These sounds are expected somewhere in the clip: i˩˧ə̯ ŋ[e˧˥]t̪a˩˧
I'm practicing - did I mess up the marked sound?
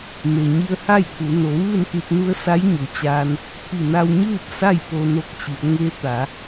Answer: no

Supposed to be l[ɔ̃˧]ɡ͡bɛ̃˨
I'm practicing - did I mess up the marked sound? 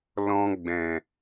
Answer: no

